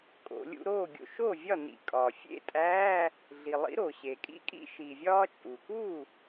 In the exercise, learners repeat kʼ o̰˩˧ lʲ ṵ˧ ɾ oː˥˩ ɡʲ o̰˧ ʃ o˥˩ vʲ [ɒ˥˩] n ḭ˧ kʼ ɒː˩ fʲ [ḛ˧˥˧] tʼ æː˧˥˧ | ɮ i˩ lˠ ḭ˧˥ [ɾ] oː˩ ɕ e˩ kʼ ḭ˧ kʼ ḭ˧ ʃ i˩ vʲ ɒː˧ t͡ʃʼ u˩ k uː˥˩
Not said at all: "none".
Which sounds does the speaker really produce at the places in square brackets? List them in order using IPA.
ɒ˥˩, ḛ˥˩, ɾ

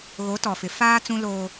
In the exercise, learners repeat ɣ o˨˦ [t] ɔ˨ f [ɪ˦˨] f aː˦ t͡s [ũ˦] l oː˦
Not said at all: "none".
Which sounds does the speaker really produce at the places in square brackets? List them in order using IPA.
t, ɪ˨, ũ˦

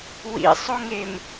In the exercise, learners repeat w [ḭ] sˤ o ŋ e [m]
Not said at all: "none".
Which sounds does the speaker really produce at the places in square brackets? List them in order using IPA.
ḭ, m

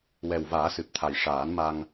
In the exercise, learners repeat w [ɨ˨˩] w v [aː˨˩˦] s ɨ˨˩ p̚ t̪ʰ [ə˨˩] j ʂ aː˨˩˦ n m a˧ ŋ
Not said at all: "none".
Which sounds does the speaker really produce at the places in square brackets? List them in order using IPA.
ɛ˨˩, aː˨˩˦, a˨˩

